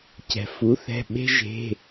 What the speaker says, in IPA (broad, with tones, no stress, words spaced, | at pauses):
cɛ̤˩fu˩˥θɛ̤˩˧˩ ɓe̤˦ʒe̤˩˧˩